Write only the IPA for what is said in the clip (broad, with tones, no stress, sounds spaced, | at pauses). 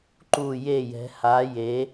ǃ u˧˩ j e˧˩ j ɛ̤˩˧ h a˩˧ j e˩˧